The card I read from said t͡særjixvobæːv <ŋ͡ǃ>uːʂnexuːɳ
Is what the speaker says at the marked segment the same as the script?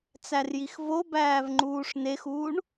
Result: yes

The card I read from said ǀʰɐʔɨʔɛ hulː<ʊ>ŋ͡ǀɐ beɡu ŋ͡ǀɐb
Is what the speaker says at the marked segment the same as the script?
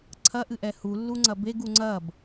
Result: no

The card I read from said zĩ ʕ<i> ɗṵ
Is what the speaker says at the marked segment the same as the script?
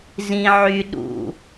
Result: no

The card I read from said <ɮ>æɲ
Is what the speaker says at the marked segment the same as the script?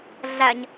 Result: yes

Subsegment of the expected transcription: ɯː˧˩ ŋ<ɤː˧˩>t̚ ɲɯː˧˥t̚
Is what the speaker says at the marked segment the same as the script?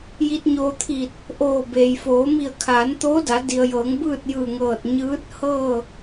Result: yes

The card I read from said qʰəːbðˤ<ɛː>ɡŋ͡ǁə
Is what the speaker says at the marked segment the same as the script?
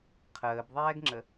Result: yes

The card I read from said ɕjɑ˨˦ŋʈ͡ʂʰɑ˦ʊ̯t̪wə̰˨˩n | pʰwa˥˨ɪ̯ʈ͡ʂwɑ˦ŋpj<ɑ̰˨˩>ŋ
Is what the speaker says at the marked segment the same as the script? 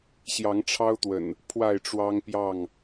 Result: no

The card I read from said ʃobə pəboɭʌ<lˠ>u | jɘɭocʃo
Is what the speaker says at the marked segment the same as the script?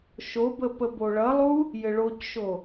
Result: yes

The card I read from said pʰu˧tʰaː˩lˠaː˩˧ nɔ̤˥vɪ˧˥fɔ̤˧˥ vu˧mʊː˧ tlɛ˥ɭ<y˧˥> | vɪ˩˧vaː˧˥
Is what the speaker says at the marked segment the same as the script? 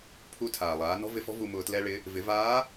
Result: no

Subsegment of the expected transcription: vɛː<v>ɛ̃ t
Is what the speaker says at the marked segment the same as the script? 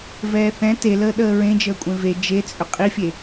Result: no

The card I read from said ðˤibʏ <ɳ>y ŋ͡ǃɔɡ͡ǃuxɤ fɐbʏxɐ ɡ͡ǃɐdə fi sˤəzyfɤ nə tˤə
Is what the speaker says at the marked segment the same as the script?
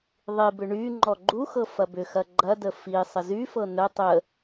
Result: yes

